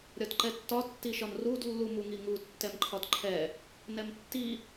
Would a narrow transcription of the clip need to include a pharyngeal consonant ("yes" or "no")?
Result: no